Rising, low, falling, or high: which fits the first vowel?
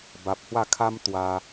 low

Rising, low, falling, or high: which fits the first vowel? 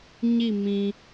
falling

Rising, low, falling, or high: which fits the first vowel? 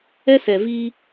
high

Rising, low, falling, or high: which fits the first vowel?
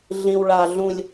high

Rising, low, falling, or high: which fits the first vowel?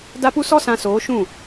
high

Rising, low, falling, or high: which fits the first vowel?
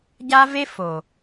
high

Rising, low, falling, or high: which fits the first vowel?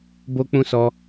high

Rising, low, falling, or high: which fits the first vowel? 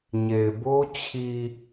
low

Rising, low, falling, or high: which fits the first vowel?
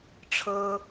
high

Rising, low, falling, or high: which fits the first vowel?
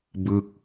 falling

